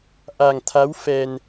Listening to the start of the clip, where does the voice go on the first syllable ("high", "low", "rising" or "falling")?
low